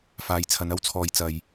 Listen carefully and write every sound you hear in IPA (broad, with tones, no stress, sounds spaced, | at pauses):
f aː˨˧ j t͡sʰ ɐ˨˧ n ɐ˥ w t͡sʰ ɔː˨ j t͡s ɐ˨ j